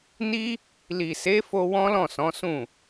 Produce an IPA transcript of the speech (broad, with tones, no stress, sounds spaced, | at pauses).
n i˦ | l i˨ s e˨˦ f o˧ w ɔ̃˦ l ɔ̃˦˨ s ɔ̃˨˦ s ũ˦˨